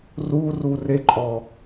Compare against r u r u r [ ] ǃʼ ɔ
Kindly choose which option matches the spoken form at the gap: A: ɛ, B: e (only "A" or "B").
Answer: B